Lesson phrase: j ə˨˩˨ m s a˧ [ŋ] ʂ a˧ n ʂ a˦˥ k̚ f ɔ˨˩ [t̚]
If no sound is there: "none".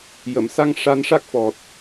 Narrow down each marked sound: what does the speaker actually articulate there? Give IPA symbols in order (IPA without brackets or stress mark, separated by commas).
ŋ, t̚